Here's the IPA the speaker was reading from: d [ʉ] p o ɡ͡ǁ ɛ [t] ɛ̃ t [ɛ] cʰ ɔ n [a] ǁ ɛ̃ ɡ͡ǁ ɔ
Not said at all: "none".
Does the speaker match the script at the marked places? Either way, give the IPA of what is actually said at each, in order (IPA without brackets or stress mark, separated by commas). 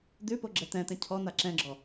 ʉ, t, ɛ̃, a